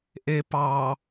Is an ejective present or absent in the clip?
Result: absent